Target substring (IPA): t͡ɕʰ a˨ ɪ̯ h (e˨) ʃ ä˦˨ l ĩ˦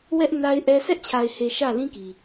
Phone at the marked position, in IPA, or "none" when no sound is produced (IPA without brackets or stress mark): e˨